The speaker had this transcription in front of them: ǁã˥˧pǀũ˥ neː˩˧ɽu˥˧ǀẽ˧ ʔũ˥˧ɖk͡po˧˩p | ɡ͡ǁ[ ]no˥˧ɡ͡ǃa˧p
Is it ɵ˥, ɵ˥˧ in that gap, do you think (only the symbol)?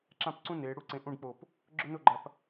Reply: ɵ˥